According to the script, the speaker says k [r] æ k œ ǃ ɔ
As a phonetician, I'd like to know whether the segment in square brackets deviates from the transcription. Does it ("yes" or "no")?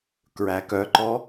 yes